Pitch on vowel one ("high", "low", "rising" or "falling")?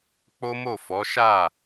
high